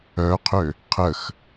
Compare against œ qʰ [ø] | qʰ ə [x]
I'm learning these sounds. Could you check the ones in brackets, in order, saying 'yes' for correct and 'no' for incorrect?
yes, yes

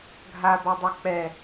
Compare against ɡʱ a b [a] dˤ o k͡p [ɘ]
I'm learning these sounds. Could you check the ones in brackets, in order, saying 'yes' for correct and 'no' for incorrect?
yes, no

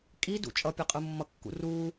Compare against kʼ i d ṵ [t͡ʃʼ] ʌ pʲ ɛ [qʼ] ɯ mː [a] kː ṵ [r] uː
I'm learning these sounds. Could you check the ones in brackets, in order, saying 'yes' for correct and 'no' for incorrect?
yes, yes, no, yes

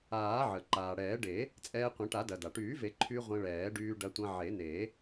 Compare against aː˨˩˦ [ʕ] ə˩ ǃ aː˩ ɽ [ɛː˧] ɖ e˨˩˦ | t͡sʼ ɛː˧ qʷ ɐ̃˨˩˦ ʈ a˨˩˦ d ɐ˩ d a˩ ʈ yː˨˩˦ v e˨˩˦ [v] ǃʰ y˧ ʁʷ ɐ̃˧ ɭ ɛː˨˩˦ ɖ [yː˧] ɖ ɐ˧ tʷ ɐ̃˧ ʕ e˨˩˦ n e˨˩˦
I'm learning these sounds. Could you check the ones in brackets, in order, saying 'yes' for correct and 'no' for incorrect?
yes, no, no, yes

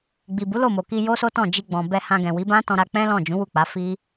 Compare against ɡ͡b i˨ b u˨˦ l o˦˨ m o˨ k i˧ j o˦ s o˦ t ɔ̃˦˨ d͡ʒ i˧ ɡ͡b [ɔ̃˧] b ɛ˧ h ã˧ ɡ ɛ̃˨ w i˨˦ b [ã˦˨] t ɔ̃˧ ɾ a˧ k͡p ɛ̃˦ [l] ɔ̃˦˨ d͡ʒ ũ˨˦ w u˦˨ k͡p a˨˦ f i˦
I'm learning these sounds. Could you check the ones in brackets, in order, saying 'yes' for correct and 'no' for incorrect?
no, no, yes

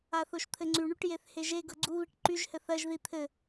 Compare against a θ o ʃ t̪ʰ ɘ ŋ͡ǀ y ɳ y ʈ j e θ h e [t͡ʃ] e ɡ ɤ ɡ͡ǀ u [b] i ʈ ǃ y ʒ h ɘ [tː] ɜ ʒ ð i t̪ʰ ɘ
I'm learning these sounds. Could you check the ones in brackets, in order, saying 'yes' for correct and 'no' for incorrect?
no, no, no

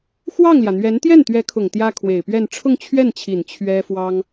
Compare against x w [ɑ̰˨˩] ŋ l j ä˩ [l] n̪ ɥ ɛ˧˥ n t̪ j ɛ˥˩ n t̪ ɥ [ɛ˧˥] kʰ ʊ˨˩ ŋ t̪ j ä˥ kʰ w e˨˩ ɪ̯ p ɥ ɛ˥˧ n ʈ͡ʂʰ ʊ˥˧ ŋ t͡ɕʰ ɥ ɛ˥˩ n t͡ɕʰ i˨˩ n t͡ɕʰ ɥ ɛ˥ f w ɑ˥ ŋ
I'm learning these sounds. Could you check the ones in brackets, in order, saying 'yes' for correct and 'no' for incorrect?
no, no, yes

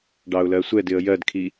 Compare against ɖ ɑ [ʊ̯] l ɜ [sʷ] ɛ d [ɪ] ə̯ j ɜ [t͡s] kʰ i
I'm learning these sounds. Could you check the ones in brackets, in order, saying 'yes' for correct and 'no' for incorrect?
yes, yes, yes, no

